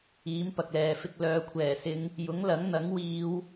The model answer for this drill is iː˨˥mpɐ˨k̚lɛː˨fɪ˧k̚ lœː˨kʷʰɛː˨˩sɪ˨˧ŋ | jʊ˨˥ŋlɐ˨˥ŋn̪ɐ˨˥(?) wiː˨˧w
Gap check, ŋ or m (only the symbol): ŋ